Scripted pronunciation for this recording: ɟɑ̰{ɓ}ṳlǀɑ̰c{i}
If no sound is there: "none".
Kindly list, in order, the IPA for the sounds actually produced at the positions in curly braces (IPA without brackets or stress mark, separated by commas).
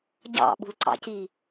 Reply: ɓ, i